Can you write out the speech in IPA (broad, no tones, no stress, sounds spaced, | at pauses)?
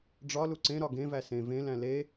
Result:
ɖ͡ʐ ɒ l u ǀ ẽ ɾ ɒ ɡ ẽ v æ s ẽ v ẽ l æ̃ l e